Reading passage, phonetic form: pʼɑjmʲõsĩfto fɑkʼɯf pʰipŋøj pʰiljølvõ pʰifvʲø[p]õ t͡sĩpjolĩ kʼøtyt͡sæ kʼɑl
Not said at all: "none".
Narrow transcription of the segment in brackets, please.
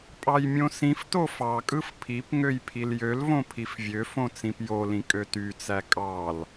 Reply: f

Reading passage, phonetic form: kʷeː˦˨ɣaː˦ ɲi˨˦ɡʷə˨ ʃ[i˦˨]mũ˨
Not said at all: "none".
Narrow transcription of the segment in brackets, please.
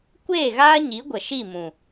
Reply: i˦˨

